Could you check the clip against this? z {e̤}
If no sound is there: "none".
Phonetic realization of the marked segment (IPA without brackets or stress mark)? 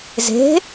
e̤